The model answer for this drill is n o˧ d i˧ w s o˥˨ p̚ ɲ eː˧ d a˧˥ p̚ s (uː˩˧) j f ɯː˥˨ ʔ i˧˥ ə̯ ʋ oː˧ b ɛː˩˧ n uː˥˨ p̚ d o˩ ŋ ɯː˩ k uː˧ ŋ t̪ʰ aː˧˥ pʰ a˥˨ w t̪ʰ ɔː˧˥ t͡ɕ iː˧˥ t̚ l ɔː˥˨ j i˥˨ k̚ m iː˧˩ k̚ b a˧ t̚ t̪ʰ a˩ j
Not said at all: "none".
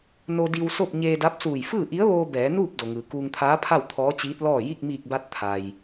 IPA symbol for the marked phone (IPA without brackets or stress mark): uː˧˩